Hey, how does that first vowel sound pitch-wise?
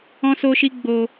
high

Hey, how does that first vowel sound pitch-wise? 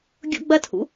high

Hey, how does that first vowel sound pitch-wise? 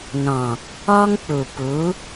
low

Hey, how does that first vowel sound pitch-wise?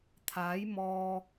rising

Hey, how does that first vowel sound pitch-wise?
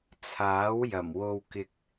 rising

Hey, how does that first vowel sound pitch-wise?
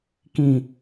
low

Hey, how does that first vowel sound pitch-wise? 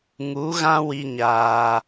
rising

